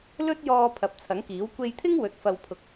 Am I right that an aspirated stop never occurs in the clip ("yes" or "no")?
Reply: no